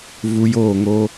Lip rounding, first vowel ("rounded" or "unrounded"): rounded